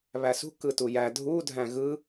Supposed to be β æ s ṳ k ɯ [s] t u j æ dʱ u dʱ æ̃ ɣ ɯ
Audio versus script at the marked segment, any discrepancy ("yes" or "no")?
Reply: yes